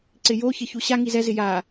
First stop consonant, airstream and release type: click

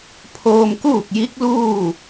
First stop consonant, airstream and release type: aspirated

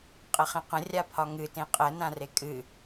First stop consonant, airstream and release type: ejective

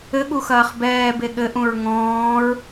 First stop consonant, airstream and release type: implosive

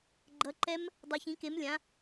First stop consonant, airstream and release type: click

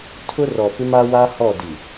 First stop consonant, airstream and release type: aspirated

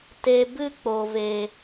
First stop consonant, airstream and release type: plain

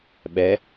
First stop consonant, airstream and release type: implosive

